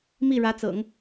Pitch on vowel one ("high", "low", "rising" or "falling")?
falling